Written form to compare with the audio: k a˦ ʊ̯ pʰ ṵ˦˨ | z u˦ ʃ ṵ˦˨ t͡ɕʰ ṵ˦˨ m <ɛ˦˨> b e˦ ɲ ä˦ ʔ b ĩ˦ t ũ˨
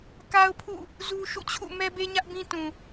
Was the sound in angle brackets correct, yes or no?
no